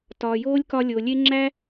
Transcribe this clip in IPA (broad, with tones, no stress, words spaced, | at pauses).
tɒː˨joː˦lʲkɒ˧ lʲo˨lʲe˦ ŋ͡ǁæ˦